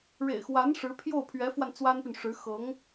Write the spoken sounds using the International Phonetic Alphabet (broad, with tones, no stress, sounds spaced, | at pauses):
ɻ ḛ˨˩ ɪ̯ x w a˧˥ n ʂ ɻ̩˧˥ pʰ j o˥˩ ʊ̯ pʰ ɥ ɛ˧˥ f w a˧ n t͡s w a˥ n p y˨ n ʂ ɻ̩˧˥ x ɤ˧˥ ŋ